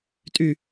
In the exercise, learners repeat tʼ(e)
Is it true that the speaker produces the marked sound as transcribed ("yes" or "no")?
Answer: no